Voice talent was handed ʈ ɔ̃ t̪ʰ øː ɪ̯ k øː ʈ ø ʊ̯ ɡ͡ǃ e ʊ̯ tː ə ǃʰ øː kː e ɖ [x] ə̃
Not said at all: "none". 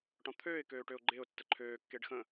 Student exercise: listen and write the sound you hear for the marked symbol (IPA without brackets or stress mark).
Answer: x